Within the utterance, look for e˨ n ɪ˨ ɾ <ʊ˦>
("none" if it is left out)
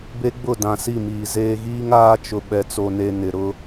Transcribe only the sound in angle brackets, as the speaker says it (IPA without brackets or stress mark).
ʊ˦